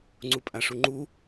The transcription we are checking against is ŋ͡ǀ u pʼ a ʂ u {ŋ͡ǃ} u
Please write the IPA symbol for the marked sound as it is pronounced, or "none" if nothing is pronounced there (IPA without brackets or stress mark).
ŋ͡ǃ